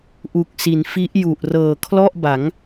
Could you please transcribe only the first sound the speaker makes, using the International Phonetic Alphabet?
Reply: ʔ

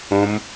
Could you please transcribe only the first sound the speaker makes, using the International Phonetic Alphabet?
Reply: õ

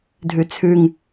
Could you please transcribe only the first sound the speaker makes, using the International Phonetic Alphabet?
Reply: dʱ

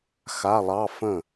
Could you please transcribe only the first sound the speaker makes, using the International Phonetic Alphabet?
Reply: x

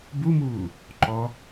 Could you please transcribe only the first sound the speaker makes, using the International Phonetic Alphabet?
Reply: b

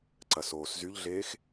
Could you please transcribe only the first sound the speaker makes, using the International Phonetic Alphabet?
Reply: ǀ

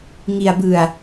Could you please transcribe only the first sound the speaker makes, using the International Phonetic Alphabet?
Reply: ŋ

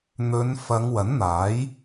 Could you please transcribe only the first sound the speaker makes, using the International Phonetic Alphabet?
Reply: n̪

